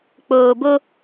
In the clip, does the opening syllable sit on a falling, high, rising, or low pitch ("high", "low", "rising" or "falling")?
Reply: low